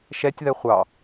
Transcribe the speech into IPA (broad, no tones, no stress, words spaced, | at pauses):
ʃɛtʲðɛ χʷɑ